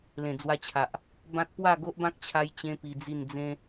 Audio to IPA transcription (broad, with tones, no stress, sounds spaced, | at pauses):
l ẽ˨˩ d͡z w a˧ t͡ɕʰ a˨ ʔ | b ã˦ t̚ p w a˥˧ ɡ o˦ ʔ b ã˦ k̚ t͡ɕʰ a˦ j t͡ɕ ẽ˦ p i˧ d͡z i˥˧ n d͡z ẽ˦